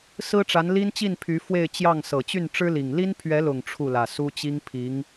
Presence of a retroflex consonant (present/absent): present